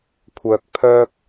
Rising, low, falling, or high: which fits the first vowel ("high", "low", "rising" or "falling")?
low